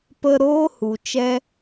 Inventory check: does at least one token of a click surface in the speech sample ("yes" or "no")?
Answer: no